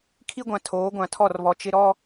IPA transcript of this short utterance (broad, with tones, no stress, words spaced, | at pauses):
kʰi˦ɡʷã˨ tʰoː˨˦ɡʷã˨ tʰɔ˦˨rβɔ˨ t͡ʃɪ˦ ɾɔ˦